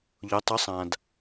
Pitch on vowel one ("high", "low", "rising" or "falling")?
rising